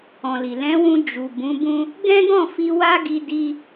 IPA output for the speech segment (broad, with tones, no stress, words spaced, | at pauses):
ɔ̃˨li˨ lɛ̃˨˦wũ˧ d͡ʒu˨ bũ˨˦bũ˦ | ɡɛ̃˦ɡɔ̃˦˨fi˧ wa˦ɡi˧ di˧